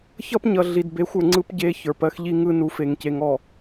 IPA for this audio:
çʌ˦pɲʌ˨ ɮi˨d be˨˦xʷə˞˨ŋ͡ǀɯ˦p ɟe˦çə˞˨p ɜ˦xʎi˦ŋɯ˦ nu˨˦fe˨ŋce˨ŋɔ˨

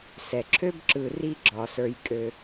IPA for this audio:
sɛ˩ǁʰø˥b ǁɯ˨ri˦ ɡ͡ǁɒ˩sə˞˨jkʼø˨

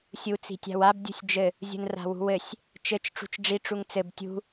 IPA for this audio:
sʲu t͡si̤tʲa̤wab dʲṳsʲd͡ʒɘ | zʲṳnra̤wṳwɘsʲ | t͡ʃɘt͡ʃ ʈ͡ʂṳt͡ʃɖ͡ʐi ʈ͡ʂuŋt͡sɘb tʲṳ

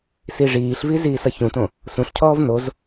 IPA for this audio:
siʐiːɬvi ziːsʌçũtõ | sũɬcʰɔːv noz

